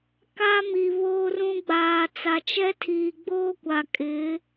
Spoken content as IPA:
k a˦ m i˨ β oː˦ r ũ˦ ɡ͡b aː˨ t͡s a˨ t͡ʃ ɛ˦ tʰ iː˨ ɡ͡b oː˦ kʷ a˨ kʼ ɪ˨˦

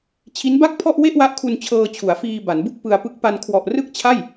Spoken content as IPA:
t͡ɕʰ i˦˥ n b a˥˩ k̚ pʰ ɔ˥˩ ʔ w e˥˩ ʔ w a˦˥ ʔ kʰ u˧ n t͡ɕʰ ɤː˧ t͡ɕʰ u˩˦ a̯ f iː˧ b a˩˦ n b u˥˩ k̚ p ɯ˧ a̯ p ɯ˦˥ k̚ p a˧ n kʰ w ɔ˨˩ ʔ r ɯ˥˩ k̚ t͡ɕʰ a˥˩ j

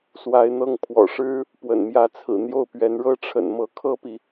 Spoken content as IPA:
s w a˧˥ ɪ̯ n̪ ɤ˥˩ ŋ pʰ w ɔ̰˨˩ ʂ ɻ̩˥ | p w ə̰˨˩ n m j ä˧˥ t͡sʰ ɹ̩˨˩ n̪ j o˥˩ ʊ̯ p ɥ ɛ˧˥ n ɻ ɤ˥ ʈ͡ʂʰ ə̰˨˩ n m ɤ˧˥ kʰ ɤ˥ p i˨

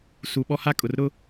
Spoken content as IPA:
s u˨ ɓ ɔ˦ h a˦ kʼ ʊ˨ r ɾ ʊ˦

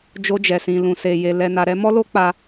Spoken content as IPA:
d͡ʒ o˦ d͡ʒ ɛ˧ s ĩ˧ l ũ˧ s e˧ j e˧ l ɛ˧ n a˧ ɾ ɛ˦ m ɔ˦ l o˦ k͡p a˧

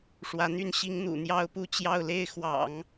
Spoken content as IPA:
ʂ w ä˧˥ n̪ y˥ n ɕ i˧˥ ŋ n̪ ṵ˨˩ n̪ j ɑ˥ ʊ̯ p u˥˧ t͡ɕ j ɑ˥˧ ʊ̯ l e˥˩ ɪ̯ x w ɑ̰˨˩˦ ŋ

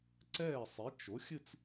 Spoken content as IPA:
ǀ ɛː˥˩ sˤ i˩˥ t͡ʃ o˩˥ xʲ ɨ˥˧ t͡s

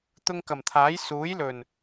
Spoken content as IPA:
t̪ ʊ˧ ŋ k ɐ˨˩ m t̪ʰ aː˨˥ j s uː˨˥ j l ɵ˨˩ n

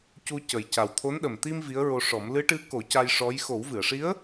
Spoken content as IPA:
c u˧ c ə˨˩ j c a˨˩ w t̪ʰ o˧˥ n ɗ ə˨˩ m t̪ i˧ m v i˧˥ ə̯ ɹ o˧ ʂ ɔ˨˩˦ m l ɨ˧˥ ʈ ɨ˧˥ k o˨˩˦ c a˧ j ʂ ɔ˧˥ j x o˨˩˦ w v ɨ˨˩˨ ə̯ ʂ i˧˥ ə̯

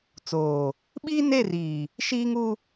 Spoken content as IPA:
t͡s oː˨ | ɓ iː˦ n e˦˨ r iː˨ | ʃ iː˦ ŋ u˦

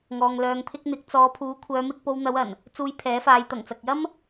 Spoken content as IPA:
ŋ ɔː˨ ŋ l œː˨ ŋ pʰ ɪ˧ k̚ n̪ ɪ˨˥ k̚ t͡s ɔː˨˧ pʰ uː˨˥ kʷʰ œː˨˧ m ɪ˧ k̚ p o˧ w n̪ ɐ˨˧ w ɐ˨˩ n | t͡s uː˧ j pʰ ɛː˨˥ f aː˨˧ j t̪ ɐ˨˩ ŋ t͡s ɐ˨ k̚ j ɐ˥ m

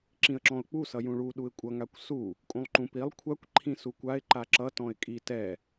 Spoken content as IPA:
ǁ ĩ ə̯ ǁ ɔ̃ ʊ̯ k͡p u s ʌ j ũ ɭ u ɗ u ɪ̯ kʷʼ ʌ ŋ a kʷ s u | kʼ ũ lˠ ǃ ũ p i lˠ kʷʰ a kʷ ǃʰ ĩ s u kʷ a ɪ̯ ǃ a ǁ ʌ t ɔ̃ ɪ̯ kʼ i t ɛ

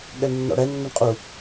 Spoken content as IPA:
ɠ ɛ ɳ nː ɔ̰ ɽ ɛ nː ʏ ɳ qʼ u

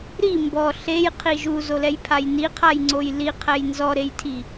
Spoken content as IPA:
ɾ i m b ɔ ɬ e j qʰ i ʒ u z o l ɛ j pʰ a j n i qʰ a j ŋ͡ǀ o j l i qʰ ɛ j n z ɔ ɾ e j tʰ i

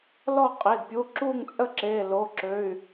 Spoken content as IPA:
l ɔ˥˨ qʼ e˩˧˩ d pʲ u˩˧˩ ǁ u˥˨ ŋ t͡sʼ ə˥˨ ǁ e˩˧˩ l o˩˧˩ ǁ ø˩˧˩ y̯

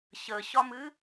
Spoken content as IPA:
ɕ ə ɕ ɒ m ɨ

